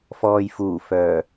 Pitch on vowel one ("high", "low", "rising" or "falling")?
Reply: low